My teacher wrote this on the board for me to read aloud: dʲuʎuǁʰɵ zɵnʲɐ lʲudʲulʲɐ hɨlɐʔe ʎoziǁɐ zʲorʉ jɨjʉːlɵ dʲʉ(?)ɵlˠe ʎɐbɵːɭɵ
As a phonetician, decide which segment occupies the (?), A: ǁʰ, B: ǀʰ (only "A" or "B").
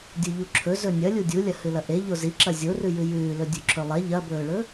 A